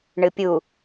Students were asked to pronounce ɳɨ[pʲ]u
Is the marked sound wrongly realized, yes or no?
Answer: no